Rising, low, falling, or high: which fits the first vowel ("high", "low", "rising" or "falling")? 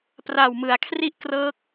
low